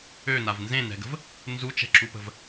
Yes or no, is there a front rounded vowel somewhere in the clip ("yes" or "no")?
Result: yes